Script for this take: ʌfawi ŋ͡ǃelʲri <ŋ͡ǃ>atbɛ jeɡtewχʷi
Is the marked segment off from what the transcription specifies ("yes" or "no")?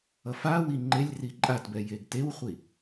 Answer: yes